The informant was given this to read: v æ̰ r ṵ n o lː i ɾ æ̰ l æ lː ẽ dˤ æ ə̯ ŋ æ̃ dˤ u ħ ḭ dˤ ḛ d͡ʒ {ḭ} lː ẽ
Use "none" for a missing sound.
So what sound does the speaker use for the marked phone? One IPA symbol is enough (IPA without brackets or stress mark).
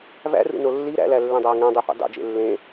ḛ